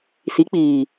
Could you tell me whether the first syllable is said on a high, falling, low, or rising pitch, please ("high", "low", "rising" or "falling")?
rising